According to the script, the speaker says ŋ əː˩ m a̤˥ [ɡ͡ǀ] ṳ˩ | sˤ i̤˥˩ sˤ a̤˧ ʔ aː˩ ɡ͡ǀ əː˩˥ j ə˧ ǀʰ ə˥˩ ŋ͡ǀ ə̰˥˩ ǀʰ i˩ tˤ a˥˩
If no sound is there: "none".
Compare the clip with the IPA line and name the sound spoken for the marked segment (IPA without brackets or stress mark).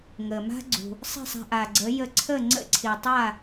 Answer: ɡ͡ǀ